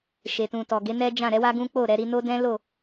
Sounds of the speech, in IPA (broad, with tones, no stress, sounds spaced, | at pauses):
ʃ e˨ t ũ˨ t ɔ˨ ɡ e˨˦ n ɛ˦ d͡ʒ ã˦˨ ɾ ɛ˨˦ w a˦ ɡ ũ˦ k͡p o˦˨ ɾ ɛ˨˦ ɾ i˦ n o˦ d ɛ̃˦ l o˦˨